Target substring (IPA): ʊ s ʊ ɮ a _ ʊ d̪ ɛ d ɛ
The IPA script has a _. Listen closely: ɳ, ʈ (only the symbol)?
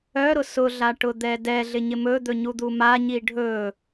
ʈ